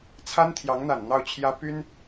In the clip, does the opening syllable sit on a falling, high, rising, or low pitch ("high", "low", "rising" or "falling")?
high